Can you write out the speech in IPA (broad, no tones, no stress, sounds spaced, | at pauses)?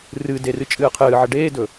r ɨ d e r ɨ t͡ʃʼ ɨː qʰ ɨː ʕ ɐ ɖ eː d ɵ